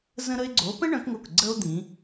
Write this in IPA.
z ə̃˥ ɾ ə˥ e̯ ɡ͡ǀ o˨˦ p ə̃˥ ɳ œ̃˨˦ k ŋ o˧˩ k ɡ͡ǀ ə˥ o̯ d̪ ĩ˨˦

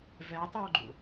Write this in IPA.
v ɛ tˤ o ɡ͡ǃ ṵ

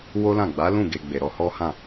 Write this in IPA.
w o˦ l ã˦˨ ɡ͡b a˨˦ l ũ˦˨ ɡ e˨ ɡ͡b e˨ ɾ ɔ˧ h ɔ˦ h ã˦˨

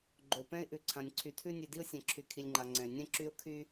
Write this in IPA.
ɡ͡ǃ o˩ p ɛ̃˧ ɪ̯ ʔ ʉ˩ ǀʰ ã˩ nʲ ǀʰ y˩ tʰ ʉ˧ nʲ ʉ˩ d i˧ ʊ̯ sʲ ɛ̃˩ ǁʰ y˩ kʰ i˩ lʲ ŋ͡ǃ a˩ ŋ͡ǀ ɛ̃˩ ɪ̯ nʲ ɛ̃˧ ǁ y˧ ʊ̯ kʰ y˧

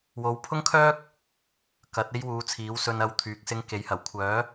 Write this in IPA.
w o˨˥ w pʰ ʊ˥ ŋ kʰ œː˥ k̚ | k ɐ˨˥ t̚ e˥ j w uː˨˧ t͡sʰ iː˨˥ w s ɵ˧ n ɐ˧ w t̪ʰ yː˨ k̚ s ɪ˧ ŋ k e˨˥ j h ɐ˨˩ w kʷʰ œː˨˥

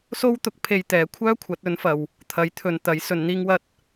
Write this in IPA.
s o˥ w t̪ ʊ˨˥ k̚ pʰ e˧ j t̪ ɛː˨˥ kʷʰ œː˥ kʷʰ ɐ˨˥ t̚ ɵ˨˥ n f ɐ˨ w | t̪ʰ ɐ˨˥ j t̪ʰ ɵ˨ n t̪ ɐ˨˥ j s ɵ˨˧ n n̪ iː˥ ŋ w ɐ˥ t̚

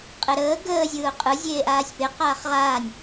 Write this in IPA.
qʼ e ɾ əː ɡ əː zʲ ɯː ʊ̯ qʼ ɯ zʲ eː ʔ aː sʲ p e q aː χ ʁ aː nʲ

